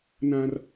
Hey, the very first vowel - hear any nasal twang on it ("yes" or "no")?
yes